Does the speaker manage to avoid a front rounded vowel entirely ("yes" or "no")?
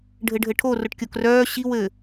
no